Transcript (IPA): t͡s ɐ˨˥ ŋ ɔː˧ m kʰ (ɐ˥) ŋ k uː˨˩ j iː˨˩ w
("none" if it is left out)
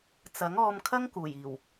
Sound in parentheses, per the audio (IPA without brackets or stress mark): ɐ˥